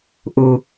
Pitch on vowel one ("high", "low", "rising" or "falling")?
low